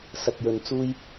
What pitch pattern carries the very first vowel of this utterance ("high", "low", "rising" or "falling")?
low